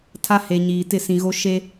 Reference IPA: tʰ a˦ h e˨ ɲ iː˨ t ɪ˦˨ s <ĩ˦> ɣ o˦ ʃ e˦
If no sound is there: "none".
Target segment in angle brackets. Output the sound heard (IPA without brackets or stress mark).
ĩ˨